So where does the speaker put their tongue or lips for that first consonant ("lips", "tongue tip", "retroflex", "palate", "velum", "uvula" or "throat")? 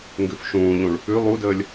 velum